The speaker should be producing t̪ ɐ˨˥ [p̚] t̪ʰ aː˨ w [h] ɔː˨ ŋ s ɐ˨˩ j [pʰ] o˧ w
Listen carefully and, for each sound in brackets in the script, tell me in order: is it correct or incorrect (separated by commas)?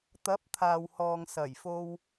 correct, correct, incorrect